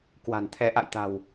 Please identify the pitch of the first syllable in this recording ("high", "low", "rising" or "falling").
low